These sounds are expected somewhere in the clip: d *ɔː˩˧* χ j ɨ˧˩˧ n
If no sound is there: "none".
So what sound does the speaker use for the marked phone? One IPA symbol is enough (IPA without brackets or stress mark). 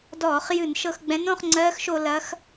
ɔː˧˩˧